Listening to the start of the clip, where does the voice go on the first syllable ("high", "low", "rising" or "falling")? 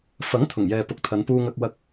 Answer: rising